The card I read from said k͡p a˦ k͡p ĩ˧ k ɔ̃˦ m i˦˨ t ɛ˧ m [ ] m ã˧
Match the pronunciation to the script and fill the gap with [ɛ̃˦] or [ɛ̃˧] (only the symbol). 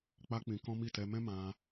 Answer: ɛ̃˦